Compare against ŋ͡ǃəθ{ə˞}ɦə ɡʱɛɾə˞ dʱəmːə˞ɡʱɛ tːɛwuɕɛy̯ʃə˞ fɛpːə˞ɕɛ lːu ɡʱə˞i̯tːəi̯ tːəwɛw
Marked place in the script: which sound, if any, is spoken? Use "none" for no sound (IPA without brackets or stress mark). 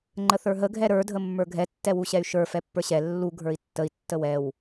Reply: ə˞